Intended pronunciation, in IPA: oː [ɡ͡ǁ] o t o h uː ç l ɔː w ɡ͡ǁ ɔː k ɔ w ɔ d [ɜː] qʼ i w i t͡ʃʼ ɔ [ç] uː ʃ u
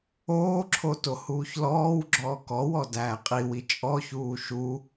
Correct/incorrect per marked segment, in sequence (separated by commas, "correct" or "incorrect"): incorrect, incorrect, correct